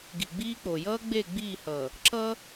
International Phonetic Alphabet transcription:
ɡ i˨ ɡ͡b iː˦ k͡p o˨ j ʌː˦ ɡ͡b e˦˨ ɡ͡b iː˦˨ h ʌ˨ | ǁ ʌ˦

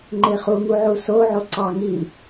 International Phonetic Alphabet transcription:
ŋ͡ǃ e χ u ŋ u ʕ u s o ʕ o ǀ ɑ ŋ i

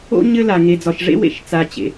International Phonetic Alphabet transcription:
o̰˧ ɲ ɘ˧ l a˩ ŋ e˩ d͡z ɒ˩ ʃ ʐ ḛ˧ w ḛ˩ ʃ t͡s a˩ t͡ɕ ḛ˩

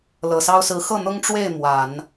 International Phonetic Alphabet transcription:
l ɤ˨˩ s ɑ˥ ʊ̯ s ɹ̩˧˥ x ɤ˥˩ n̪ ʊ˥ ŋ ʈ͡ʂ w e˥˩ ɪ̯ m w a˨˩˦ n

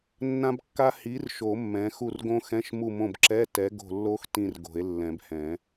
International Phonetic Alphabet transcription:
nː ã˦˥ b kː a˦˥ h i˨˥ r ʃ o˨˩˦ mː ɛ̃˨˥ x u˦˨ r ɡ õ˦˥ x ɛ̃˧˥˧ ʃ m u˦˨ m õ˦˨ b ǁ ɛ˧˥˧ t ɛ˨˥ ɡ o̤˦˨ lː o˦˥ x t ĩ˦˨ r ɡ o̤˨˩˦ e̯ lː ɛ̃˨˩˦ b h ɛ̃˨˩˦

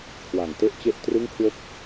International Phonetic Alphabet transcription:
kʰ w a˨˩ ŋ t e˦˥ ʔ t͡ɕ e˥˩ ʔ t r ɯ˥˩ ŋ kʰ w o˥˩ k̚

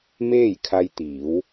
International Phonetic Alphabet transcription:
m eː˥˨ j kʰ a˧ j t̪ iː˩˧ w

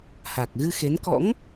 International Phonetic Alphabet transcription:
h a˨˩ k̚ ɣ ɨ˧ x e˨˦ n k ɔ̰˧˥ ŋ

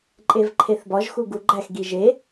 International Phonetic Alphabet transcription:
ǃʼ e v ǃʰ e θ b ɒ ʒ x u ɡ u ɡ͡ǃ æ x ɡ i ʒ e

